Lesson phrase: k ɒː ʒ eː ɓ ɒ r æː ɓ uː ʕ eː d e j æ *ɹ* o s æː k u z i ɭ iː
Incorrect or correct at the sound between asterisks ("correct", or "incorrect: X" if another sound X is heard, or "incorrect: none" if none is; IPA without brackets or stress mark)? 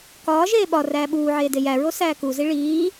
correct